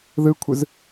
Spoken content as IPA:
ðɯkʷʰɯz

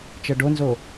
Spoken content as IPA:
t͡ʃɤɖonzo

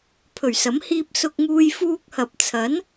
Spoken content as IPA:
pʰɵ˨˩ɥsɐ˨˥m hiː˧p̚ sʊ˧k̚ŋuː˧j fuː˧k̚hɐ˨p̚t͡sʰɐ˨˥n

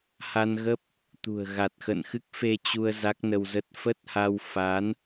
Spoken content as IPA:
ha˧nɣə˦˥p̚ | t̪ṳ˨˩ə̯ ɣa˨˩t̚xə̰˧˨nxɨ˦˥k̚ fe˧t͡ɕu˧ə̯ za˦˥k̚nə˧wzə˦˥t̚ fə˦˥t̚ha˧w fa˨˦n

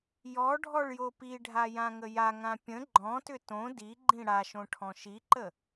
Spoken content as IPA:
jɔ ɖʱɔɭjopiɖʱa jãŋəjaŋã pʲə̃ ɡ͡ǃɔ̃tʏ tõ diɡ͡ǃĩ ɽaʃõ ʈʰɔ̃ʃiǃə

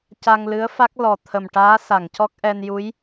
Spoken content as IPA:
ca˧ŋlɨ˧˥ə̯fa˦˥k̚ lɔ˨˩t̪ʰə˨˩mʈaː˧˥ sa˨˩˨ŋcɔ˦˥k̚ʔɛ˧n ju˧˥j

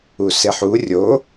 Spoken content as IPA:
useħu rʲo

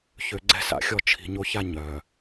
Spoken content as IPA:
çø˨ ɡ͡ǀɛ̤˦sa̰˨xʲɔ˦ t͡ʃʰi̤˨ ɲo˦ça˦ ɲœ˨

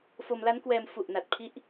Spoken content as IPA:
fo˧mla˦˥nkwɛː˧m fu˨˩ʔna˨˩t̚pʰi˦˥ʔ

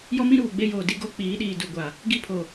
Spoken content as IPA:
jɔ˦mĩ˦ɾuː˨ ɡ͡be˦joː˨ di˦ɡo˦ k͡piː˨˦ɗiː˨ du˨ɡʷa˨ | ɡi˦pʰo˨

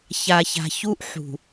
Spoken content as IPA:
ça˨ça̤˨çu˦ʔ ħṳ˨

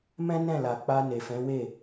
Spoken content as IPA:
mɛ̃˦ nɛ̃˦˨la˨k͡pa˧ ne˨fɛ̃˨˦we˦˨

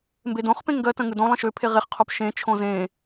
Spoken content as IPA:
mbedõχpẽ ŋɡɜtə̃ ŋɯdõlˠə̃ ʃøpʰe ʁeχqʰop ʃẽt͡ʃʰõ zẽ

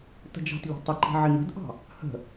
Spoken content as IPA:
tə̤d͡ʒɑ̤tʎɑ̤ tˤɪǃi̤ ʕɪŋə̤dʔɑ̤ | hə̤

